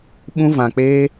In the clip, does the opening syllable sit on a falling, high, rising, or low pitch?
high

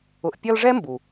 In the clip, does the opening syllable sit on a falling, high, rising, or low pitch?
low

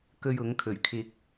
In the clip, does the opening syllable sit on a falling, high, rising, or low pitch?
high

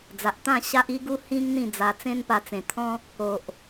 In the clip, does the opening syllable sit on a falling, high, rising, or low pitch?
low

